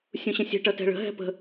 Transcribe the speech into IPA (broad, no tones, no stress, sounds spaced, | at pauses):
sʲ ũ ɕ ə̃ sʲ ɛ̤ ʈ ʌ t ɛ̤ ɭ ə̤ ɦ ɛ̤ p ə̤